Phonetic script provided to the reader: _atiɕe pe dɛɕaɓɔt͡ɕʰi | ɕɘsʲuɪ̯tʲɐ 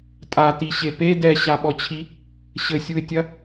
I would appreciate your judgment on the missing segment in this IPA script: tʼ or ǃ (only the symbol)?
tʼ